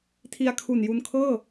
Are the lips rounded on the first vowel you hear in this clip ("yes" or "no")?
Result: no